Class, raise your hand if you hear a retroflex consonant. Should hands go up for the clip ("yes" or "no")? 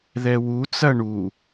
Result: yes